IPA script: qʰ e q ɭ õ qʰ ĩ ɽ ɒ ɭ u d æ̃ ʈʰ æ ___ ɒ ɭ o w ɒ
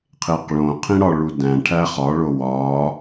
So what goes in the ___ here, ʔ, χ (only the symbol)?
χ